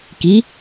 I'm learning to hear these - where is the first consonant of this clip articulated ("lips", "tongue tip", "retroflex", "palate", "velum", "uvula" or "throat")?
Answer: velum